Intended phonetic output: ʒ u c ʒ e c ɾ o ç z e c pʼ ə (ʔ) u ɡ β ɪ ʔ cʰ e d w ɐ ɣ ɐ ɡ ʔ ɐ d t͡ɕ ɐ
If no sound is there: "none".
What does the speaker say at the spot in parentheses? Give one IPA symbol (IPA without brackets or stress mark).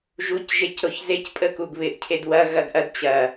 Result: k